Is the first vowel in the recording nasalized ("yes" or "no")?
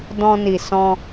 yes